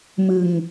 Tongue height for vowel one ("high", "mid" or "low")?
high